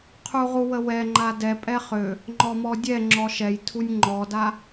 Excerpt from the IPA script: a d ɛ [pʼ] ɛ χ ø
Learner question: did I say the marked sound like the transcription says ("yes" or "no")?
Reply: yes